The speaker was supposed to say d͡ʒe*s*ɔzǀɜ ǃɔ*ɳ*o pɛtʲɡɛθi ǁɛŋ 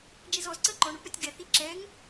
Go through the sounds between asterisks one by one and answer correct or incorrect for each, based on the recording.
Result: incorrect: z, correct

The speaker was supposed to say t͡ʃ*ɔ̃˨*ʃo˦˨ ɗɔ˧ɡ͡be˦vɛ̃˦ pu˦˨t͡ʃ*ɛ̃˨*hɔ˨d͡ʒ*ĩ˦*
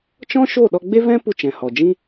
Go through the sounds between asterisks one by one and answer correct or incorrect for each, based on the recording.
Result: incorrect: ɔ̃˦, correct, correct

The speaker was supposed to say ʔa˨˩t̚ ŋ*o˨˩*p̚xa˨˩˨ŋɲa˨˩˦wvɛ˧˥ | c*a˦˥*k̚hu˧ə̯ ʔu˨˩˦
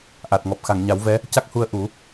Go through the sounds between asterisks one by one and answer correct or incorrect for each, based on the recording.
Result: incorrect: ɔ˨˩, correct

